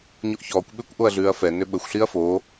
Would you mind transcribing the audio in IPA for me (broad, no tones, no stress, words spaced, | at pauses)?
ɲoʔçɔːkʷ ɓʏːkʷʔoɐ̯ɮʉːɐ̯fɛ nʏɓəxʷ ɬiɐ̯foː